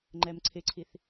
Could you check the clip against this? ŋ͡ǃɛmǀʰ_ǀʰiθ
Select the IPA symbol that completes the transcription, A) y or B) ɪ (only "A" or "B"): B